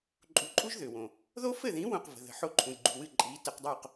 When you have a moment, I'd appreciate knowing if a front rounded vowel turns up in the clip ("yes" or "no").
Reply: yes